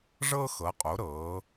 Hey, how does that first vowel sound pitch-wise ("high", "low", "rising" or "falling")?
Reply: high